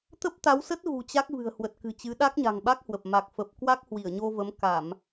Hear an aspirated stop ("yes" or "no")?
no